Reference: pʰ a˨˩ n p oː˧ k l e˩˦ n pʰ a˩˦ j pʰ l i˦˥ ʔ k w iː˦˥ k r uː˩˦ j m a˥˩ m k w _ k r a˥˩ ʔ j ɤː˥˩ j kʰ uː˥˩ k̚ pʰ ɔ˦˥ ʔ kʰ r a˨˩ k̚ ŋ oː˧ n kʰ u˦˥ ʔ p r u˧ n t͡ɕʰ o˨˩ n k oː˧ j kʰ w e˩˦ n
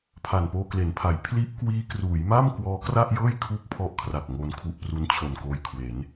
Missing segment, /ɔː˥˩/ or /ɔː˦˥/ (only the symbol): ɔː˦˥